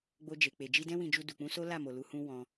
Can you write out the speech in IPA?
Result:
ɡ͡bo˧d͡ʒe˨k͡pe˨ d͡ʒi˧dɛ̃˦wĩ˧d͡ʒu˧ du˨k͡pũ˨˦ so˦la˦˨mo˨ lu˧hũ˦ wɔ̃˧

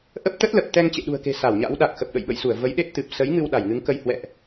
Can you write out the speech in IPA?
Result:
ʔə˦˥p̚t̪ə˦˥t̚lə˨˩p̚ t̪ɛ˧ŋt͡ɕḛ˧˨ɗṳ˨˩ə̯ke̤˨˩ sa˧˩wɲa̰˧˥wɗa˨˩k̚ xə˨˩p̚ɗə̰˧˨jɓə̰˧˨jsu˧˩ə̯ və˨˦jɗe˦˥t̚t̪ɨ˨˩p̚ sə˨˦jŋɨ˧w ɗa˧˩jŋɨ˨˦ŋkə˧j hwɛ̰˧˨ʔ

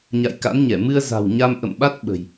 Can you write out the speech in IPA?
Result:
ɲa̰˧˨jka̰˧˥nɲɛ˧˩ mɨ˧ə̯ za̤˨˩wɲa˧mʔə̰˧˨mɓa˦˥t̚ ɓə̤˨˩j

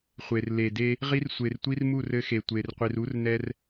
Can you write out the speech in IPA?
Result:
χʷe˨rle˨de˦ | ʁi˦rsʷe˨rtʷi˦rmu˦˨r ɘ˦xe˨ tʷe˨rqʷi˨r u˦r nɛ˦r

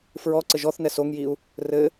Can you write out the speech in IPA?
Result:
fɹɔǀɘ ʒɔθnɛ soŋjiu̯ | rɘ

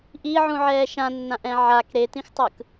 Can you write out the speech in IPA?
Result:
ʔiʕũʕɛː ʃãnːãʔɛ̃ ʕak ɾetĩxtˤɯk

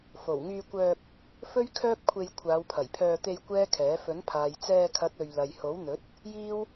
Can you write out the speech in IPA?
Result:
fo˨˩wŋyː˧kʷœː˧k̚ | fɵ˥ɥkʰœː˥p̚kʷʰe˧j kʷʰaː˨˧wpʰɐ˨˩jpʰœː˧t̪e˧j kʷɛː˥kʰɛː˨˥ fɵ˨˥npʰaː˨j t͡sɛː˧kʰɐ˨˥t̚ ɵ˨ɥ lɐ˨jho˨˥wn̪ɵ˨˥t̚ | jiː˥w

